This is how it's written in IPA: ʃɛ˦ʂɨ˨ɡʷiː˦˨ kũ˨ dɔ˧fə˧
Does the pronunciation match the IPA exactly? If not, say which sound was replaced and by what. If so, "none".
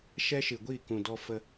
ʂ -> ʃ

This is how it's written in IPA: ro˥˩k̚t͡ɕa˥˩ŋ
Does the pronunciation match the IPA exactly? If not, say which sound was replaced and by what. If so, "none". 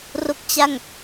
none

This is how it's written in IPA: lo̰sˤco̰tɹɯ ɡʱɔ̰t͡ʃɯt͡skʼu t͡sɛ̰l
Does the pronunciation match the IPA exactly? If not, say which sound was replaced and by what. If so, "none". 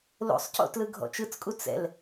ɹ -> l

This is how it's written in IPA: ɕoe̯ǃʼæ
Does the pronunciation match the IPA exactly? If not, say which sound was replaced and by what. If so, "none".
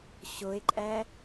none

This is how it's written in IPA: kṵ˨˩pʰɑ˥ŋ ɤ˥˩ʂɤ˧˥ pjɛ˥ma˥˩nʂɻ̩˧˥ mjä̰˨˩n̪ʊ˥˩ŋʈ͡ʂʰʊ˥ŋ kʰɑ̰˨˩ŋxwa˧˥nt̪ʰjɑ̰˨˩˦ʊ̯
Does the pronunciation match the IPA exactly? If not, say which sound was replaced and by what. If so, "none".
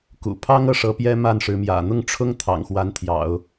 kʰ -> t̪ʰ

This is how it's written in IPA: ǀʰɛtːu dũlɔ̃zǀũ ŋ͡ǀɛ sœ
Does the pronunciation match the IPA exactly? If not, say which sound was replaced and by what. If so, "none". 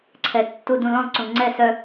none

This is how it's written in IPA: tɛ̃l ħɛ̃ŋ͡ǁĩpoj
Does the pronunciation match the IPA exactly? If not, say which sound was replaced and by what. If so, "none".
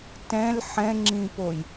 none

